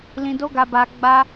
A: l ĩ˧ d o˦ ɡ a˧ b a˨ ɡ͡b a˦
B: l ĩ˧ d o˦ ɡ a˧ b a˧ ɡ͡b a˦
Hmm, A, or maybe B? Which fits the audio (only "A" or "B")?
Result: B